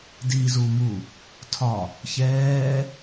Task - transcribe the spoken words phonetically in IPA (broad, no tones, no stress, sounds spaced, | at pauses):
d i z u m u | tʰ ɒ | ç ɛː